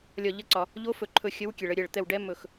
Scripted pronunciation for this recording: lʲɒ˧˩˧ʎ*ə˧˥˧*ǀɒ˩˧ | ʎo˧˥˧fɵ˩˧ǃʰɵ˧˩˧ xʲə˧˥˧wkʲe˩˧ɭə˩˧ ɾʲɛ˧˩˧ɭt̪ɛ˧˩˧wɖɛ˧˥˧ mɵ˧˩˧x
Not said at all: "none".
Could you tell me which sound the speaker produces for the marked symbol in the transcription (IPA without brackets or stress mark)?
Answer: ə˧˥˧